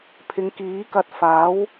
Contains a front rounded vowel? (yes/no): no